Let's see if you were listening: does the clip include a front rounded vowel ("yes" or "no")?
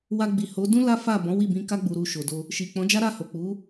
no